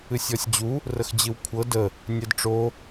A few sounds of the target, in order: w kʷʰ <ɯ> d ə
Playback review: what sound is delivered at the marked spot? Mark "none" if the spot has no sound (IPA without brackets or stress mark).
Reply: ɤ